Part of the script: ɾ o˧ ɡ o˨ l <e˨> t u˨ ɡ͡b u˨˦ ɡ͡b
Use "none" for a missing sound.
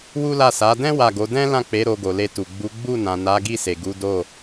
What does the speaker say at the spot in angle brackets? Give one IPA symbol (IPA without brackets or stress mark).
e˧